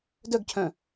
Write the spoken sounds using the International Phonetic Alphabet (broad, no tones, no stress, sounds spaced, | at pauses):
d œ ɡ cʰ œ̃